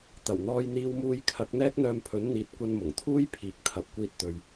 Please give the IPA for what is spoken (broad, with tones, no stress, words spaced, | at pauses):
t̪ɐ˨˩wn̪ɔː˧j n̪iː˧wmuː˧jkʰɐ˨˥k̚ n̪ɛː˥k̚n̪œː˧mpʰɵ˨˥n n̪iː˨˥t̚kʷɐ˧nmʊ˨˩ŋ t̪ʰuː˥jpʰiː˨k̚ t̪ʰɐ˨p̚kʷiː˧t̚ t̪ɵ˧ɥ